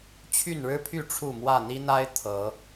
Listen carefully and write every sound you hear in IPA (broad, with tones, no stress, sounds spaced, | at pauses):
t͡ɕʰ y˥˨ n ɻ ɻ̩˦ pʰ y˥˨ ʈ͡ʂʰ u˥˨ m w ä˥˨ n̪ i˦ n̪ a˦ ɪ̯ t̪ʰ ɤ˨˦